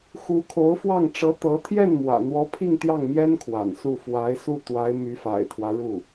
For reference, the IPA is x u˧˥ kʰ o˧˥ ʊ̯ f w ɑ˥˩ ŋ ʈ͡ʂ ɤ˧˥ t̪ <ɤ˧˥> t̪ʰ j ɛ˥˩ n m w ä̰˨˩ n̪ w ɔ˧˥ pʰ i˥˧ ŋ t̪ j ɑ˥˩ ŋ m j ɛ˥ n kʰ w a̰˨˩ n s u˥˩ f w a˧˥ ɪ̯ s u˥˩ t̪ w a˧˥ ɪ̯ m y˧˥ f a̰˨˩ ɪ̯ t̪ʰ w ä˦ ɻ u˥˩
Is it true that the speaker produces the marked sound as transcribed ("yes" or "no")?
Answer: yes